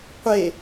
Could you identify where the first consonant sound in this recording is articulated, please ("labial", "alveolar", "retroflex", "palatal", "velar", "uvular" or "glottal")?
uvular